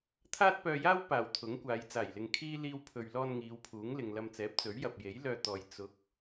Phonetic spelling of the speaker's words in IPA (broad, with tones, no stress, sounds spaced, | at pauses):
t̪ʰ aː˥ t̚ p œː˧ j aː˥ w p aː˨˩ w t̪ʰ ʊ˨˥ ŋ kʷ aː˨˧ j t͡s aː˨˩ j l ɪ˨ ŋ kʰ iː˥ l iː˧ w pʰ ɵ˨ ɥ l ɔː˧ n ŋ iː˨˧ w pʰ uː˨˥ ŋ l ɪ˨ ŋ l ɐ˧ m t͡s ɛː˨˥ p̚ t͡s ɵ˨˥ ɥ j ɐ˨ p̚ j e˨˥ j l œː˧ t̪ ɔː˨ j t͡s ʊ˨˥ k̚